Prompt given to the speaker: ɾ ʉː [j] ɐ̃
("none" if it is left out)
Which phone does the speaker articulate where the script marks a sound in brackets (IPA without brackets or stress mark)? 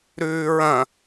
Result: ɹ